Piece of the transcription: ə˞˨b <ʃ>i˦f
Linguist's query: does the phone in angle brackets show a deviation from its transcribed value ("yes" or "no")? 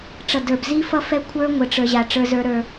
yes